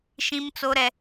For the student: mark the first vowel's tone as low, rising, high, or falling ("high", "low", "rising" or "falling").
high